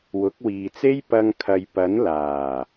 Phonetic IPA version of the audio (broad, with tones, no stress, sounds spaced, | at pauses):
w ʊ˨˥ k̚ w iː˨ t͡s e˥ j p ɐ˧ ŋ kʰ ɐ˨ j p ɐ˨˥ n l aː˨˩